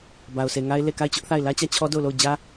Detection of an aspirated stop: present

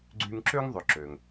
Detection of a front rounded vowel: present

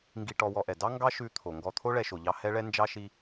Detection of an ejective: absent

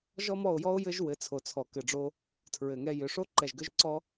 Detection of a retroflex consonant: present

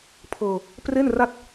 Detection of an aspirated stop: present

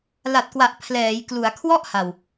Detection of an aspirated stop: present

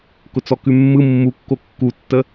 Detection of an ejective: absent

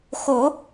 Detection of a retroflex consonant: absent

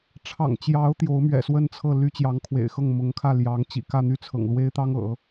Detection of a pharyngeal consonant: absent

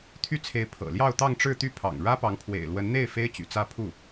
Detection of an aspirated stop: present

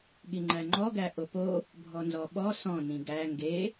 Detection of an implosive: present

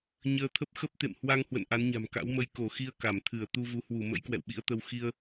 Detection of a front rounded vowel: absent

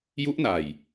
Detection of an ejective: absent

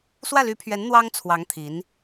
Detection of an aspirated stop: present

